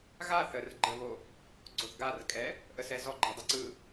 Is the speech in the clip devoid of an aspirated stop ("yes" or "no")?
yes